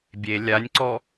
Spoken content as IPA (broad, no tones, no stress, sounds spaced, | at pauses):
bʲ e lʲ a nʲ ǀ ɔ